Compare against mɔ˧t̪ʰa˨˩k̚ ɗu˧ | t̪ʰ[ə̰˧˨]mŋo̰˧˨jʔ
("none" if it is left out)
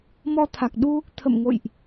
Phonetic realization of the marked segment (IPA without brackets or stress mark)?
ə̰˧˨